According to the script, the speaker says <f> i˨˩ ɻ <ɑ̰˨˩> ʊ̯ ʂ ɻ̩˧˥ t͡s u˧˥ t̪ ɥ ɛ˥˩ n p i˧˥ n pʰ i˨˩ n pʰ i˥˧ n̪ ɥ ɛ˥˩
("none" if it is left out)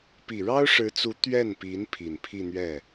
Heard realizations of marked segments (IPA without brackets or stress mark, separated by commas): p, ɑ˥